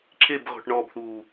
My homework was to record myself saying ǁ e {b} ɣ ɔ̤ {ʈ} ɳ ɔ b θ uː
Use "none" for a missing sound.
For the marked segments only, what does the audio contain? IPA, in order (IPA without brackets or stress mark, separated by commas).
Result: b, ʈ